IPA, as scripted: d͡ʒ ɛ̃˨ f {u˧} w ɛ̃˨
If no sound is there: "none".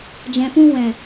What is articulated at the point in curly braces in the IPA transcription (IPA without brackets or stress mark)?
ũ˧